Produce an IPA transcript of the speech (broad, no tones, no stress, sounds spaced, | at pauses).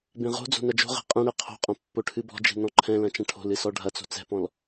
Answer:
b ẽ ʁ o̤ d͡z o̤ n ɐ d͡ʒ o̤ ʁ ɛ̤ qʼ ɛ̃ ɽ e qʰ o̤ qʼ ɐ̃ pː o ʈʰ ɨ b ɔ̤ d͡ʒ e̤ n ɔ̃ ǃʰ ɛ̃ l ɐ̃ t͡ʃ ɐ̃ ʈʰ o̤ l ɨ s ɔ ɖʱ ɐ t͡s o̤ t͡s ɛ̤ p ɔ̃ l